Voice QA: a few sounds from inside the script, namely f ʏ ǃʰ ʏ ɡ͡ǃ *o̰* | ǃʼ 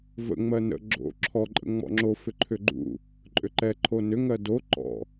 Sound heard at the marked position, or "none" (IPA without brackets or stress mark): ṵ